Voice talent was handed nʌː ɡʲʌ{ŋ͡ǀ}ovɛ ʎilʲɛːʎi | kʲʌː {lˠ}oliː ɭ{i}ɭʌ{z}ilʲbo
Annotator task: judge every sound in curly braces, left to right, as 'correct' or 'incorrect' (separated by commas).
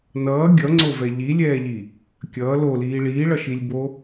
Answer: correct, incorrect, incorrect, incorrect